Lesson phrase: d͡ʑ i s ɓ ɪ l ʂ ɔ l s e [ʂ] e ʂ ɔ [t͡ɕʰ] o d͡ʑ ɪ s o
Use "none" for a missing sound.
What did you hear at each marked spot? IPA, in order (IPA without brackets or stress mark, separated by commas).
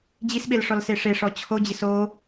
ʂ, t͡ɕʰ